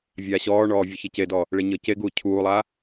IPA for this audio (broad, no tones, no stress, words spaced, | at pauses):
vʲaːɕɔːɳɔː vʲuçecedɔ | ɭeɲɤceɡuː cʰuːlˠa